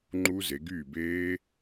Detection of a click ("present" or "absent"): present